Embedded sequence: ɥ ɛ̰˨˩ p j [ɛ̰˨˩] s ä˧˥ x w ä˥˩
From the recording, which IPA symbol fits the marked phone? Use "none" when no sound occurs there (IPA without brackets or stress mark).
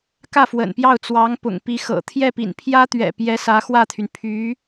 ɛ˧˥